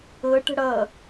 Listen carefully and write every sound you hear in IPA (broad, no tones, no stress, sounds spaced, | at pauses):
ɤ ʈ ə̤ ɽ ʌ